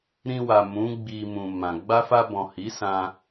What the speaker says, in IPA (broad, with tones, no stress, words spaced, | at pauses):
ɾĩ˧wa˨mũ˨˦ ɡ͡bi˧mũ˨mã˨ ɡ͡ba˧fa˧bɔ̃˨ hi˨˦sã˧